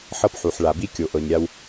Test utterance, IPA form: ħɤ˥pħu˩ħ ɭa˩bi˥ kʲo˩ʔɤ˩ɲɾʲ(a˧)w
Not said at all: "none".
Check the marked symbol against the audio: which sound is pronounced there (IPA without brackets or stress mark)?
a˧